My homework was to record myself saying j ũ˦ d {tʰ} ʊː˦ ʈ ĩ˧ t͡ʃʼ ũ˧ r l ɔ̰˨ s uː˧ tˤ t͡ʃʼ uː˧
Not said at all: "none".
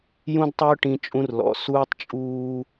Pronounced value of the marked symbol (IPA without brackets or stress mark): tˤ